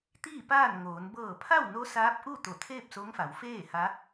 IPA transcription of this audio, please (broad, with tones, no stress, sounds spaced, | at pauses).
t̪ iː˥˨ p aː˥˨ n ŋ oː˩˧ n b ɤː˧˩ pʰ a˥˨ w n o˧˥ s aː˧˥ p̚ ʔ u˥˨ t̪ o˧˩ t̪ʰ eː˥˨ p̚ s o˧˥ ŋ f a˩˧ w f eː˥˨ h a˧˥